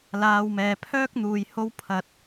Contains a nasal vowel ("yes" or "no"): no